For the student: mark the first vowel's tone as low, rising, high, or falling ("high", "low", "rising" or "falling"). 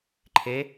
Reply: rising